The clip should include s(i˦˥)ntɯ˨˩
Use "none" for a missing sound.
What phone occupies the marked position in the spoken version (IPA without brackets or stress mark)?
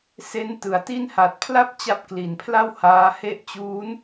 e˦˥